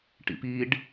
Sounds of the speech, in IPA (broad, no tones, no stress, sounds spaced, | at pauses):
ʈ ḭ p i ɖ